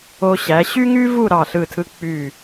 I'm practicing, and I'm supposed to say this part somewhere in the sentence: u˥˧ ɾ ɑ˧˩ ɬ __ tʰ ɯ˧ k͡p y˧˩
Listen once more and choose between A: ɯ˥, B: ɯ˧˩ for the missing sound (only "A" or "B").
B